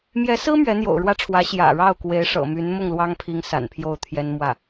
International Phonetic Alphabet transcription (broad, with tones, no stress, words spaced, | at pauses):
mjɛ˧˥sɹ̩˥ mɥɛ˧˥n̪jo̰˨˩ʊ̯ɻwä˥ʈ͡ʂʰwä˧˥ ɕjä̰˨˩ ɻɑ˥˩ʊ̯kwe˧˥ɪ̯ʂɤ̰˨˩my˧˥n mʊ˥˩ŋlwɑ˥ŋpʰi˧˥ŋ sa̰˨˩npʰjo˥˩ʊ̯t̪ʰjɛ˥n mwä˥˩